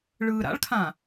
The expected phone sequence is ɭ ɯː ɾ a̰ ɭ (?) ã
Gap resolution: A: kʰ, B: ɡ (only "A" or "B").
A